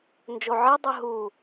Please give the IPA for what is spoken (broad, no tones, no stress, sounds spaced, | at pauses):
n d͡ʒ o ʕ i dˤ ɯ ɦ u